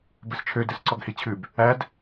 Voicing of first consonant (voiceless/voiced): voiced